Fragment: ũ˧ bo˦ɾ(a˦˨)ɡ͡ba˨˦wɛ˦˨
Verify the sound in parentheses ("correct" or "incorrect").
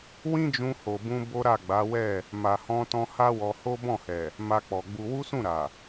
correct